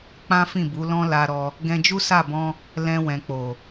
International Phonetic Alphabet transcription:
k͡pã˦fĩ˦˨bu˨˦lɔ̃˦ la˧ɾɔ˧ | ɡɛ̃˧d͡ʒu˦sa˦˨bɔ̃˧ | lɛ̃˧wɛ̃˨k͡po˨

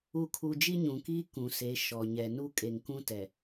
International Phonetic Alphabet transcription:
u˨kʰu˨ d͡ʒi˦ɲũ˨kiː˦ kũ˨se˨˦ ʃɔ˨ɲɛ˨ nu˦kʼe˨ŋkũ˦tɛ˨

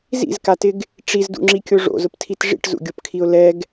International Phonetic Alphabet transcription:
zḭzkatɪɡ | ʈ͡ʂizdṵŋ͡ǁikʲo ʐo̰zʊptʰit ʐḭʈzṵɡʲopkʰiʊ̯ lɛɡ

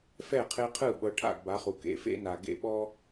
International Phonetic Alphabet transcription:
fɛ˥˩qʰe˧qʰɯ˥˩ ɓɤ˩˥ʈʰa̰˥˩ɡba˩˥χu˩ kḛ˩˥fḛ˥na˩ ɡḛ˥˩ɓɔ˥

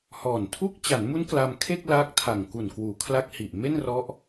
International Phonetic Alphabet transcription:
hɔː˨˩ntʰu˥˩k̚ t͡ɕa˩˦nmu˦˥n kla˧m kʰe˥˩k̚ laː˦˥k̚tʰa˨˩ŋ ku˨˩nkwuː˩˦kʰla˦˥k̚ hi˨˩ʔme˥˩nrɔ˦˥ʔ

